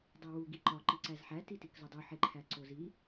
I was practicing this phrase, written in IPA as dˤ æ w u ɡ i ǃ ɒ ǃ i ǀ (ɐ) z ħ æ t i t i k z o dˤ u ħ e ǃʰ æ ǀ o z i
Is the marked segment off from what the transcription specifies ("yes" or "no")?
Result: yes